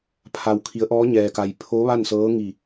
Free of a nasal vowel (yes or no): yes